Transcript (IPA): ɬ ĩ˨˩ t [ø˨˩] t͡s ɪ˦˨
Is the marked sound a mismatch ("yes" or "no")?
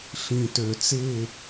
no